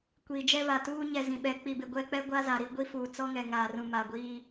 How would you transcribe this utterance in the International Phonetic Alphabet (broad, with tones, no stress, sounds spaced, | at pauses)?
kʷ iː˨ d͡ʒ ɛ˦ β a˨ t uː˦ ɲ ɛ˨ z ĩ˨ ɓ ɛ˨˦ k͡p i˨ b ɪ˨ ɡʷ ɛ˦˨ k͡p ɛ˦ ɡʷ a˦ z a˨ ɾ i˦ ɡʷ i˦ f uː˨ t͡s ɔ˦ ŋ ɛ˨ ŋ aː˨ r ũ˨ m a˨ ɡʷ iː˦